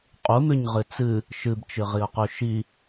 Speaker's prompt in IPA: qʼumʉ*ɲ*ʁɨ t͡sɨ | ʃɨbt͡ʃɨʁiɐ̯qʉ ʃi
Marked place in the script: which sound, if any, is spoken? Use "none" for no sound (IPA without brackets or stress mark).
ɲ